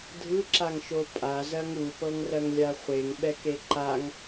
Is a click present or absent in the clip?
present